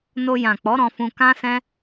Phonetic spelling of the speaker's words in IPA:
n o˧ j ã˨ k͡p ɔ˨˦ ɾ ɔ̃˧ f ũ˧ k ã˦ s ɛ̃˦

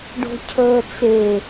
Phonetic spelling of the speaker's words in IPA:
ɖ o̤ cʰ əː t͡s e

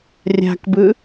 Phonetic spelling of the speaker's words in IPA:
rʲ a̤ k b ɯ

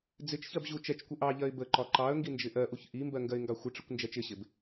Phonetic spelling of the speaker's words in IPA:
d͡z ɪ t͡ʃ ç ɜ b ʑ u t͡ʃ ɛ t͡ʃ kʷ ə ʔ ɑ ʎ ɜ ɪ̯ b ə ǃ ɒ ǃ ɑ ə̯ ŋ ɡ i n d͡ʒ ɪ ʔ ɜ ʔ u ç ʔ i m b ɜ ŋ ɡ ɜ ɪ̯ ŋ ɡ ɑ xʷ ɪ ʈ͡ʂ ɪ kʷ n d͡ʒ ɛ t͡ʃ ɪ ɕ ɪ b

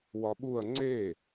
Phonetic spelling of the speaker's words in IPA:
w ɒ ɓ u ɐ̯ ŋ͡ǀ e

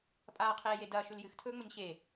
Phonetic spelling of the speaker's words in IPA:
pʼ aː qʰ eː j e d ɐː ʃ ʉ l j ɨ x tʰ ɵː ŋ͡m ɵ ɲ ɕ e

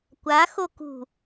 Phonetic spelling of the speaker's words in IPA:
kʷ a x o k ṳ

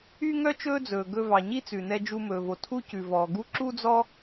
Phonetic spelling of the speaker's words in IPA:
y˥ ŋ œ˥ t͡ʃ ɵː˥ d͡z ɵː˩ ɡ ɵ˧ v ɑ˩ ɲ i˥ t͡s ʉ˩ n ɛ˧ d͡ʒ u˧ m ɵː˩ v o˩ tʰ u˥ c ʉ˩ v ɔː˩ ɡ u˥ ǁ u˥ d͡z ɔ˥

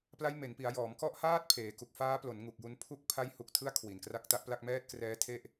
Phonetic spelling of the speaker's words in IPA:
p l a˦˥ j m e˩˦ n p i˩˦ a̯ j ɔː˩˦ m k ɔ˦˥ ʔ h aː˥˩ t̚ pʰ eː˩˦ k u˨˩ k̚ f aː˦˥ p l o˩˦ n ŋ u˨˩ k̚ j u˧ n pʰ u˦˥ k̚ pʰ a˦˥ j h u˨˩ k̚ tʰ ɯ˦˥ a̯ kʰ w i˨˩ n k r a˦˥ k̚ t a˦˥ ʔ p l a˥˩ k̚ m ɛː˥˩ t̚ k r ɛː˦˥ tʰ e˥˩ ʔ

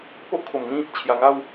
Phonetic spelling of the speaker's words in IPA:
p o˦ ʔ kʰ o˨˩ m ŋ ĩ˥˧ | t͡ɕʰ j a˨˩ ŋ a˥˧ w

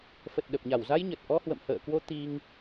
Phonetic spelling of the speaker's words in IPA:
f ə˨˩ t̚ ɗ ə˨˩ p̚ ɲ a˧˩ w z a˧ j ɲ ə˨˩ t̚ ʔ ɔ˧ h w ə̰˧˨ m h ə̰ː˧˨ k w o˧ t̪ i˧ ŋ

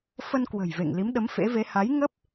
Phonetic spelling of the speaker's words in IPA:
f ə˧ n k w ə̤˨˩ j v ḛ˧˨ ŋ l i˨˦ m ɗ ə˨˦ m f ḛ˧˥ v e˨˦ h a˨˦ j ŋ ə˦˥ p̚

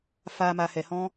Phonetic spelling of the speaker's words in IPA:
f a˨ m a˨ h ɛ˨ h ɔ̃˧

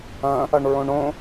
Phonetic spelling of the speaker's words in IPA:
ɐ̃ | ɐ ɳ ɹ õ ɳ õ

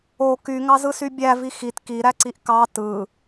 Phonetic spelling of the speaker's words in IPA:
o k y ŋ ɑ z ɯ s y bʲ æ v i x i t k i ɾ æ ǀ i ʔ k ɑ t ɯ

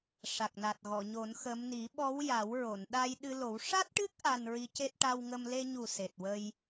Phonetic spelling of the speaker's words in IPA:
ʂ a˨˩ k̚ n a˨˩ t̚ ɣ ɔ˨˩˨ ɲ o˨˩˦ n x ə˧˥ m n i˨˩˦ ɓ ɔ˧˥ w j a˨˩˦ w ɹ o˨˩˨ n ɗ a˧ j ɗ ɨ˧ l o˨˩˦ w ʂ a˦˥ t̚ ʈ ɨ˦˥ k̚ ʔ a˧ n ɹ i˧˥ c e˦˥ t̚ ʈ a˧ w ŋ ə˧ m l e˧ ɲ u˨˩ s e˨˩ t̚ w ə˧ j

